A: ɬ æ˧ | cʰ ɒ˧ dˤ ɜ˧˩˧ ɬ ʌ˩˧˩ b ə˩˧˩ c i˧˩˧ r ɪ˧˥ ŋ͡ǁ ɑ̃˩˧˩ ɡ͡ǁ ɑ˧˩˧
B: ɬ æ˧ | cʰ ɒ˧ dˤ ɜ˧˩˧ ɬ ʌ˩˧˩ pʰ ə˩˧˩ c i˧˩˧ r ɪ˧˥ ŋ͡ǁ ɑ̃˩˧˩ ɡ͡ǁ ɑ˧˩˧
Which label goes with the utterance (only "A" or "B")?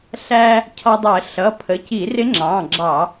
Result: B